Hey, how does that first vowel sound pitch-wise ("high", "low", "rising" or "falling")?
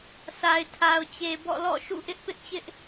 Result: low